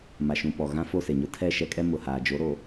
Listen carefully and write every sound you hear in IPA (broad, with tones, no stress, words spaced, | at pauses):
ma˨ʃũ˨pɔ˨ ɣã˦fo˦˨se˨ɲʊ˦ tʰɛ˦˨ʃɛ˦kʼɛ˦ mʊ˨haː˨d͡ʒo˨˦ ɾoː˨